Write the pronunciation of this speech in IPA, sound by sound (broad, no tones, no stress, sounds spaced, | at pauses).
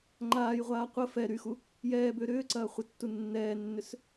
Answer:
ŋ͡ǃ aː j ʁʷ aː qʷ ə f ɛ ɾ y x u | j ɛː b ʏː ɾ ʏː ǀ ɐː χʷ ə tː u nː ɛː nː ʏ s